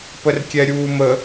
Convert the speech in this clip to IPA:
pərkʲɛɾʲuːmə

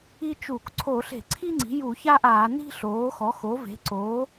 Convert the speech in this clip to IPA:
i˥t͡ʃu˧˩˧k ǀʰo˧˩˧ɬe̤˧˩˧ǀʰi˥ŋ͡ǀi̤˩˥ ju˧˩˧ça˥ʔaː˧˩˧ ni̤˥ ɬoː˩˥xɔ˩˥ xo˩˥ve̤˩˥ǀoː˩˥

